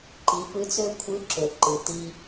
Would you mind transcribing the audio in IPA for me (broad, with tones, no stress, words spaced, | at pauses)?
ǃi˩˧pɯ˧˥t͡sø˥ kʷʰɯ˧˥ǁø˩ ǃɯ˩ti˧